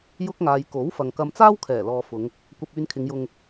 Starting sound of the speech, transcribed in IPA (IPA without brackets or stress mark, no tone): j